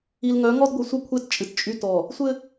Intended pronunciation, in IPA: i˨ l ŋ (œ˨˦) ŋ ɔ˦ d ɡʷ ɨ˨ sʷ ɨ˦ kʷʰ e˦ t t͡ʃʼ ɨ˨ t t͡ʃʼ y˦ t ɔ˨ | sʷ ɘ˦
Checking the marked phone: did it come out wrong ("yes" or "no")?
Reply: no